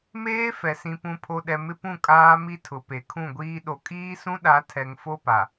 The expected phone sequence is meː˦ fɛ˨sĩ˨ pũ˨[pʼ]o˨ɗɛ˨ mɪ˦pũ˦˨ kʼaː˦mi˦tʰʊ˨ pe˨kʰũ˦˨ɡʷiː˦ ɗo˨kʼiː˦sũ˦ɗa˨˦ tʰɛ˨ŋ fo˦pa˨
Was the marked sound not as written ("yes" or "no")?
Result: yes